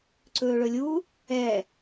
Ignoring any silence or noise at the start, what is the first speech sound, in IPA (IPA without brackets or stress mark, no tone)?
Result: ǀ